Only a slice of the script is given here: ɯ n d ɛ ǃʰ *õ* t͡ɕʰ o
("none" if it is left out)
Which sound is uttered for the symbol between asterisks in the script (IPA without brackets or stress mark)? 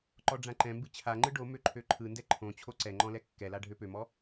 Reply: õ